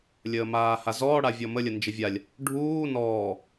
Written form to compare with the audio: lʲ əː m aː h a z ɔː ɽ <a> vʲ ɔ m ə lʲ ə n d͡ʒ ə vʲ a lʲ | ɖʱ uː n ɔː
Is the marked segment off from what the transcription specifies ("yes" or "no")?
no